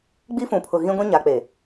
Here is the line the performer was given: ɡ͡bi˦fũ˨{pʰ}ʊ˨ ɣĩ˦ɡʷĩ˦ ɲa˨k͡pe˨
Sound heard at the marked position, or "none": pʰ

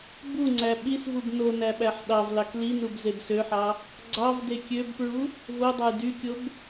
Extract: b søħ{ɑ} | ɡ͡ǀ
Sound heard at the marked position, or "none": ɑ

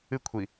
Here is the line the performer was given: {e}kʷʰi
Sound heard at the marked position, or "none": ɨ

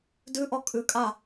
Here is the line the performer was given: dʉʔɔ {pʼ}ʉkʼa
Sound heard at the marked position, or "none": kʼ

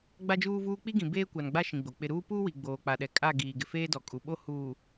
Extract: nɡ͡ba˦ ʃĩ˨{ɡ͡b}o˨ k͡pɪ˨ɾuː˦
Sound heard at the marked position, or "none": ɡ͡b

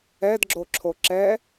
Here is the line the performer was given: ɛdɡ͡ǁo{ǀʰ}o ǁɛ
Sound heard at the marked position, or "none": ǁʰ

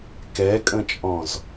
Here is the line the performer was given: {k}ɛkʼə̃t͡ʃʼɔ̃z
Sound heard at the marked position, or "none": k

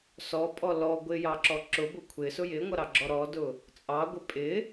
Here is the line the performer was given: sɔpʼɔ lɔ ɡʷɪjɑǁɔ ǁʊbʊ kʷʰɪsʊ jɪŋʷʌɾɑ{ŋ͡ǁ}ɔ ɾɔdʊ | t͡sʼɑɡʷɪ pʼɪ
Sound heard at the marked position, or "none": ɡ͡ǁ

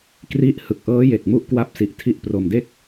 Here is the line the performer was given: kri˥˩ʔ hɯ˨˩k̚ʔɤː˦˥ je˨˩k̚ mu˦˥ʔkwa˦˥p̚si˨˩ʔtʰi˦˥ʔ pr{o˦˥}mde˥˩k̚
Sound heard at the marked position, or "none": o˧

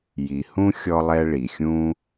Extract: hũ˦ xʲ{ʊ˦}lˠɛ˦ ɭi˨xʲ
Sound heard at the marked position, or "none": ɔ˦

